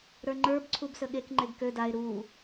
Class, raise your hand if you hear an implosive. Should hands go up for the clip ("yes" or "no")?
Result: yes